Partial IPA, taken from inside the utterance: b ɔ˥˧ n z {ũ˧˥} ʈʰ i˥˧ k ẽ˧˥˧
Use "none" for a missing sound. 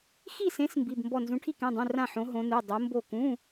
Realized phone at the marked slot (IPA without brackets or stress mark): ũ˧˥